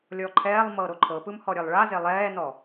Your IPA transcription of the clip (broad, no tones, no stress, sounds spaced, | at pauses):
lʲ ɔ ǃʰ ɛː lˠ m ɤ ɾ o ǃʰ ɤ p ɯ m h ɔ ɾʲ e lˠ ɭ a z e lˠ ɛː n ɔ